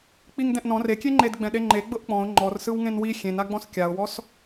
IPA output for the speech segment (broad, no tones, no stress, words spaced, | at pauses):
k͡piŋdɛ̃ʔnɔ̃r ekʲeŋ͡ǃed ɡ͡bɛ̃ɗeŋ͡ǃe ɡ͡bɤʔk͡pɔ̃ʊ̯ ŋ͡ǃɔrsɯw ŋẽnwi xʲẽnaɡ͡bɔ̃s kʲaʊ̯wɔs